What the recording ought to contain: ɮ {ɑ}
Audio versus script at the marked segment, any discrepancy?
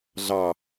no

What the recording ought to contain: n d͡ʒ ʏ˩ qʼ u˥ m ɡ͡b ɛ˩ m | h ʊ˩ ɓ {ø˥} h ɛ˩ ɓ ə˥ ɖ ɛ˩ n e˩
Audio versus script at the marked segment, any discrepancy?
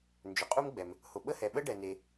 yes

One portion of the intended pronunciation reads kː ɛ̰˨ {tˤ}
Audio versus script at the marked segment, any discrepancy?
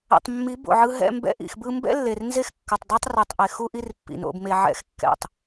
no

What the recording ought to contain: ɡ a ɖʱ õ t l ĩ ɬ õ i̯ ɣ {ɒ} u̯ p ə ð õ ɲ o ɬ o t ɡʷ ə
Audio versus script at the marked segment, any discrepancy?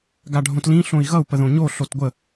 yes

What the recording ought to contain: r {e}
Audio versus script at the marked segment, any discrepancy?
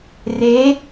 no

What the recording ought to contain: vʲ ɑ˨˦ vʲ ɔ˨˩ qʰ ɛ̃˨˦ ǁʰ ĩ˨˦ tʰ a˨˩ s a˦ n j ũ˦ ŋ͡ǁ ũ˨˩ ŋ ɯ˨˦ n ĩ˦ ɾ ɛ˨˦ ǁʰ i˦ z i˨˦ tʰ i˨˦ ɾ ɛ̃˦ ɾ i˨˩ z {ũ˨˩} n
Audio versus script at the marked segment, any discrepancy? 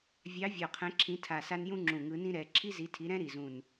no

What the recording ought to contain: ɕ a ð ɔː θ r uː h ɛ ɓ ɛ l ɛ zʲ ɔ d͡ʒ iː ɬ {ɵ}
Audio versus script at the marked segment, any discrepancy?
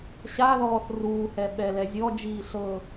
yes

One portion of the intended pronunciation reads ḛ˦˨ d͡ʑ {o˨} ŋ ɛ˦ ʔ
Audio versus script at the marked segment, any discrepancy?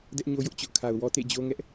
yes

